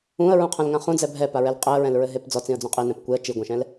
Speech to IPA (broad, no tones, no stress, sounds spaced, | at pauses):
ũ ə̯ ɹ ũ qʰ ɐ̃ l ŋ ã χ ũ d͡z ɛ bʱ ɛ p a ɹ ɛ l qʼ e ə̯ ɹ ɛ̃ l ɹ ɘ ɦ e p d͡z ɔ t͡s ĩ ə̯ d͡z õ qʼ i n ɛ̃ p kʷ e ə̯ t͡ʃ i ɡʷ ɛ̃ ʃ ɛ̃ l